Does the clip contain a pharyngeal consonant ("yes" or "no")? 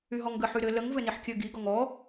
yes